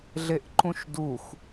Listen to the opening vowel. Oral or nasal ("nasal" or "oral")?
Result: oral